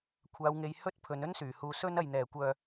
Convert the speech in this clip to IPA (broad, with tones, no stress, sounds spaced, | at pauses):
kʷʰ aː˧ w ŋ e˧ j h ɵ˥ t̚ pʰ ɵ˨˧ n ɵ˥ n s yː˨˩ h uː˨ s ɵ˥ n ɐ˨ j n̪ ɛː˨˩ kʷ œː˨